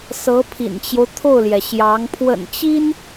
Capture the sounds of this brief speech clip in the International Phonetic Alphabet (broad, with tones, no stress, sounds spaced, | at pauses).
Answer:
s ɤ˧˥ pʰ ḭ˨˩ n t͡ɕ j o˦ ʊ̯ t̪ʰ o˥˩ ʊ̯ l j ɛ˩ ɕ j ɑ˧˥ ŋ pʰ w ə̰˨˩ n t͡ɕ i˥ n